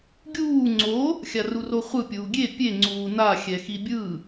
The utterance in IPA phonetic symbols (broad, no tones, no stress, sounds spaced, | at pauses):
ɡʲ uː ŋ͡ǀ o | xʲ a r u r o χʷ ɯ pʲ uː ɡʲ e pʲ e ŋ͡ǀ uː n a xʲ ɛ x i bʲ ɯ